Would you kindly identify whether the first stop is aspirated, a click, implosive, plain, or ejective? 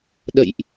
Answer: implosive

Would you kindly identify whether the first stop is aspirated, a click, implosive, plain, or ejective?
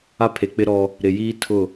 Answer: aspirated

